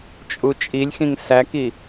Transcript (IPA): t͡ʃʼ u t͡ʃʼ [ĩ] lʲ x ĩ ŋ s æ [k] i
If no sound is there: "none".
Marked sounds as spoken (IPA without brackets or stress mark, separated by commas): i, k